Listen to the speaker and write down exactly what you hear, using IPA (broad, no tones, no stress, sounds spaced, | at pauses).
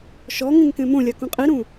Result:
ʃ ɔ ŋ ĩ ŋ k ẽ m õ lʲ a k ũ qʼ i ɾ ũ